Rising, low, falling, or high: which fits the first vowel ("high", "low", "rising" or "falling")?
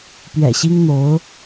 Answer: low